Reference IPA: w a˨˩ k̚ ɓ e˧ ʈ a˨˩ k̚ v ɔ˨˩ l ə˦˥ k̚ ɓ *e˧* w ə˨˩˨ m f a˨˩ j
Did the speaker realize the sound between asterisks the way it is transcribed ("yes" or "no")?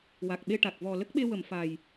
yes